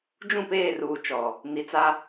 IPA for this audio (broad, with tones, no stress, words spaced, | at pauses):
d͡ʒũ˦˨peː˦˨ruː˨ t͡ʃɔ˨ | ni˨t͡sa˦